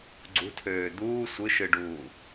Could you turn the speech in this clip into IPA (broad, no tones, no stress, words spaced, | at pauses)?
ɡ͡ǀṳtʰøː d̪uː sʷɯʃɯɖuː